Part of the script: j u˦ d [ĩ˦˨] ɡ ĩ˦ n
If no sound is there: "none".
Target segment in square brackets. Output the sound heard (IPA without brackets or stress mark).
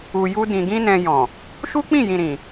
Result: ĩ˧